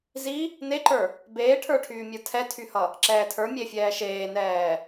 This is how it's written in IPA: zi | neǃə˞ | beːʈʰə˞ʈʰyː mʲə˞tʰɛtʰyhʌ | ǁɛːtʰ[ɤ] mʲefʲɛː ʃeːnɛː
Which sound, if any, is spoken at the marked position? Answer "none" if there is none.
ə˞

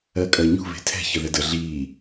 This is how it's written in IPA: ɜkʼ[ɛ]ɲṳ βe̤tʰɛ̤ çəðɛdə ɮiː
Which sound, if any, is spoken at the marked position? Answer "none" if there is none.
ɜ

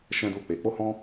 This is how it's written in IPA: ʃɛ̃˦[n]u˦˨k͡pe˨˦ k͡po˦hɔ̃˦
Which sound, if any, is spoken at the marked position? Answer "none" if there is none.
d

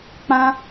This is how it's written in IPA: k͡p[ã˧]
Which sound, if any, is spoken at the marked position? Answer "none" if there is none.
ã˧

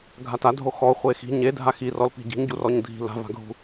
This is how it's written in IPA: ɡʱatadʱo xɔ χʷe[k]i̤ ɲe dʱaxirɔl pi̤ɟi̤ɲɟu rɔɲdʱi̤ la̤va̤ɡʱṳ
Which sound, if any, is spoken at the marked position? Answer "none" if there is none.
x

